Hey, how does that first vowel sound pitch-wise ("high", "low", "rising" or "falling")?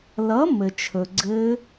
rising